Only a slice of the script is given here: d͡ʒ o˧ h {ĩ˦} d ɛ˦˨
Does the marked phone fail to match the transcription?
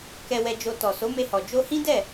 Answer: no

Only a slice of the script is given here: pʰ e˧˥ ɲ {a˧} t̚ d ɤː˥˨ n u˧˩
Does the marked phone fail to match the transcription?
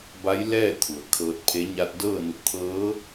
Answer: no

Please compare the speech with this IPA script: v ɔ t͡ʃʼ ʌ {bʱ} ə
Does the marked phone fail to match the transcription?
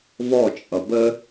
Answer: yes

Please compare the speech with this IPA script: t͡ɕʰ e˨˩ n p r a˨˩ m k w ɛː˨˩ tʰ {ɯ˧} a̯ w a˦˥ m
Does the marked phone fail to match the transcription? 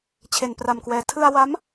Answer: no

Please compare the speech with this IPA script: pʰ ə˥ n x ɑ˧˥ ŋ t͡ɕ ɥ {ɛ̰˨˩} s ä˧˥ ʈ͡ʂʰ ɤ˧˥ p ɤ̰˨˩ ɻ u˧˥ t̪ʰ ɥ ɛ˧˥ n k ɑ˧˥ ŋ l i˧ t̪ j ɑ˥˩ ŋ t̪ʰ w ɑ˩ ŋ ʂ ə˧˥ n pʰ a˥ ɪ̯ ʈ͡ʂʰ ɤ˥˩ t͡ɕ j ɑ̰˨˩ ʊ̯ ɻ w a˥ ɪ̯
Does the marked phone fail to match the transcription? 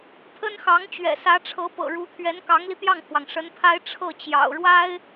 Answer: no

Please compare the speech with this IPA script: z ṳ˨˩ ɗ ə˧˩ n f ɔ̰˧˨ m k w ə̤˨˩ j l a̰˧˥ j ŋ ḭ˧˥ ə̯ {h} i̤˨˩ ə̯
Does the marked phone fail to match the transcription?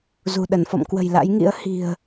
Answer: no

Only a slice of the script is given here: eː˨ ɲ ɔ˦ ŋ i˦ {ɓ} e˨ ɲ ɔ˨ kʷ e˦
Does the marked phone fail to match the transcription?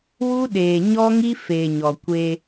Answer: yes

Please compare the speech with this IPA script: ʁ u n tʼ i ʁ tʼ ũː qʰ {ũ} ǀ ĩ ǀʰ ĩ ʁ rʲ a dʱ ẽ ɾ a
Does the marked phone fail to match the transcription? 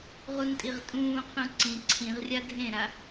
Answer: no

